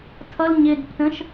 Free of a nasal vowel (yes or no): no